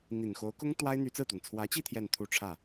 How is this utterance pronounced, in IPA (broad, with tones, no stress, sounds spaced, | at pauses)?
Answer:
n̪ i˨˩ n x o˧˥ ʊ̯ k ʊ˥ ŋ t̪ w a˥ ɪ̯ n̪ y˧˥ t͡s ɹ̩˥˩ t̪ w ə˩ n t͡sʰ w ä˧˥ t͡ɕ i˥˧ t̪ʰ j ɛ˥˧ n t̪ʰ u˥˧ ʈ͡ʂʰ ä˥˩